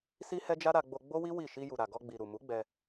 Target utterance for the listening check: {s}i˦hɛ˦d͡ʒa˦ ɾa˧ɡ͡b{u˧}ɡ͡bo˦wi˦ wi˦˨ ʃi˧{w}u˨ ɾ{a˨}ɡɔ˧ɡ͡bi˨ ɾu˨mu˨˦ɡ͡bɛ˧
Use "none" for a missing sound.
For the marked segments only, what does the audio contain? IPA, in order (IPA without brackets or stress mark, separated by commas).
s, o˧, j, a˨